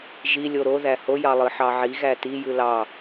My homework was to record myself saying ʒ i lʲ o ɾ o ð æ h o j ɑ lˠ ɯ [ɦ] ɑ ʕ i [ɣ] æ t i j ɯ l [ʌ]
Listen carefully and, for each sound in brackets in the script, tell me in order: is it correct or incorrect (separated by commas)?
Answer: incorrect, correct, incorrect